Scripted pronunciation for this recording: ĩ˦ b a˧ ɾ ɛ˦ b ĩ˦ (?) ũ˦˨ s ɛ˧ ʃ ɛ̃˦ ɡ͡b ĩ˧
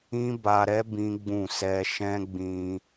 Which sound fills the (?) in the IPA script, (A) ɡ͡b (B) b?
A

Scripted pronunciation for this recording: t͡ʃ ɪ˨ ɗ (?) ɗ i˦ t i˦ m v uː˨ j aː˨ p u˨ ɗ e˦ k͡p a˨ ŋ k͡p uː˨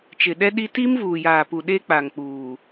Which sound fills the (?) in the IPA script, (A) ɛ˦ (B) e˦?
A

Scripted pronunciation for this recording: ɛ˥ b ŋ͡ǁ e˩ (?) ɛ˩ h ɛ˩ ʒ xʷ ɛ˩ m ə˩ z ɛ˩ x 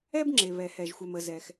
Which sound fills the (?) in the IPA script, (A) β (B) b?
A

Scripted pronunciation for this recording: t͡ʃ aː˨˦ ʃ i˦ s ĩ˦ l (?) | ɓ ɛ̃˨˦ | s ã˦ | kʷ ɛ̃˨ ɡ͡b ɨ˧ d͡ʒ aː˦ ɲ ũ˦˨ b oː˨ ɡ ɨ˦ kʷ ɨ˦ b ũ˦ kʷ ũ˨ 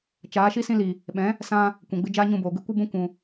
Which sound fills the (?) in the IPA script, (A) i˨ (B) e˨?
A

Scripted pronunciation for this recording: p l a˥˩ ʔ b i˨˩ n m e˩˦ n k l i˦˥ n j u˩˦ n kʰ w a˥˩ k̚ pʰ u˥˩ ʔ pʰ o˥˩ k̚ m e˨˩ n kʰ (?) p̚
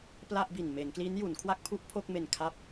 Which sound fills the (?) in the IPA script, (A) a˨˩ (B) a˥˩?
B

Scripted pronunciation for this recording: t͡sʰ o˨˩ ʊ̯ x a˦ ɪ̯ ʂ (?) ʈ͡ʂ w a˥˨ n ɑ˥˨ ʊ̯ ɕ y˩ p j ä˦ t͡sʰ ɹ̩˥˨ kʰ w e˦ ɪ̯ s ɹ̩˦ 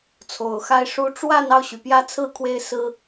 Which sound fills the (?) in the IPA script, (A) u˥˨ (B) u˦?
B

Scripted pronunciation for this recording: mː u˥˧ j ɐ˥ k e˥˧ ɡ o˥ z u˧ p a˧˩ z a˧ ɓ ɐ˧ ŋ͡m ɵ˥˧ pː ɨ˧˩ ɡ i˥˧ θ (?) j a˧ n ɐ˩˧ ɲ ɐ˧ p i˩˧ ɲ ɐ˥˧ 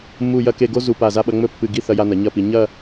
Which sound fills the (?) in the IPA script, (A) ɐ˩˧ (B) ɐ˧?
B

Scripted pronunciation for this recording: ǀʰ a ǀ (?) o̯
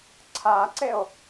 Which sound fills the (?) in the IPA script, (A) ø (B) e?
B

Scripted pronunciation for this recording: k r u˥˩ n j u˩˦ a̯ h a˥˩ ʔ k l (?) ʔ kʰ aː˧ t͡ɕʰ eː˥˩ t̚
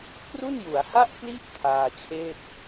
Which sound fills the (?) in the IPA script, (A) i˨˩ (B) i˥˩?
B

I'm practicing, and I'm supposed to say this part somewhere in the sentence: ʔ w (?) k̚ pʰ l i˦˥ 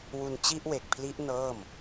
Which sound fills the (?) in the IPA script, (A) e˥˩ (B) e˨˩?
B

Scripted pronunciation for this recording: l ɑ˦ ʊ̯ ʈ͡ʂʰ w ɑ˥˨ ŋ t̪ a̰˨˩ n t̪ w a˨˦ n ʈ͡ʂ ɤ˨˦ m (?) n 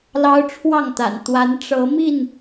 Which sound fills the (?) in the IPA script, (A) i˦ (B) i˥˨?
B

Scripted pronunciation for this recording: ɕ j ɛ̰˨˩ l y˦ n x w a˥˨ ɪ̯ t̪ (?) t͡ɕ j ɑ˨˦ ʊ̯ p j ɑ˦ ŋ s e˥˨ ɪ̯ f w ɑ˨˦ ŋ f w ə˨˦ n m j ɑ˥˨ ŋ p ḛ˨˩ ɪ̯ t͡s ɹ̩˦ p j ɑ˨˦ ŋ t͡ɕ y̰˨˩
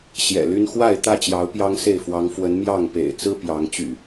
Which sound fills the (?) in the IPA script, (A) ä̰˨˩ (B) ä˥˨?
B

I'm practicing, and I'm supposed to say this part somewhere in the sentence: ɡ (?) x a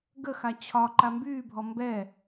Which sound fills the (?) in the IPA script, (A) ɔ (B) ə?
B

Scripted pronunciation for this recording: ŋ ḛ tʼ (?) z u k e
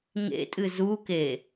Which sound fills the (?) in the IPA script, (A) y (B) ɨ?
B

